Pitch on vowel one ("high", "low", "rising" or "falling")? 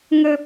high